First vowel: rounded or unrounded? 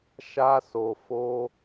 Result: unrounded